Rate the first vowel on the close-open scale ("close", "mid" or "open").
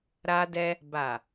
open